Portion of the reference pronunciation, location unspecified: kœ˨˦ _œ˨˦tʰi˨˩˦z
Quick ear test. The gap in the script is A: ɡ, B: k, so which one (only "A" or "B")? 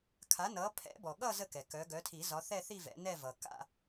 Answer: A